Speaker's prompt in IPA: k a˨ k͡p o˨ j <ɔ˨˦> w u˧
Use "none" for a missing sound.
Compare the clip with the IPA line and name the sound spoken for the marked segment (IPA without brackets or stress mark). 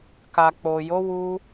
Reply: o˨˦